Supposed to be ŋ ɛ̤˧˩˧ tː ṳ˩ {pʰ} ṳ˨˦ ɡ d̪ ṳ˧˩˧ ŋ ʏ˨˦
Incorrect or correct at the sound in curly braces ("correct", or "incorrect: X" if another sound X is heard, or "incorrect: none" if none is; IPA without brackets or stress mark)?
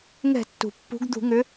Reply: incorrect: pː